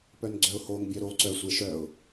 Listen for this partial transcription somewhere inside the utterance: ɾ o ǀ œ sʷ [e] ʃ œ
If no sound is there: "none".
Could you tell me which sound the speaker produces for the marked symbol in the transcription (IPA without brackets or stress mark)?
e